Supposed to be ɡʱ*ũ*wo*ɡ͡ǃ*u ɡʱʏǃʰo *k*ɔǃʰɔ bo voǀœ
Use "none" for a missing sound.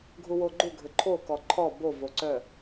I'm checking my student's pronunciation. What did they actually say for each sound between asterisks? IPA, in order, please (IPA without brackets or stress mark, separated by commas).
u, ɡ͡ǃ, k